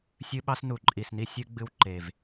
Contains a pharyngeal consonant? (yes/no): no